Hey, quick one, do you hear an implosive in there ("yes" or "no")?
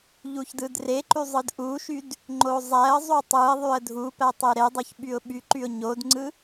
yes